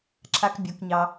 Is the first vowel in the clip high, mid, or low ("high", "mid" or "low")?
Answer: low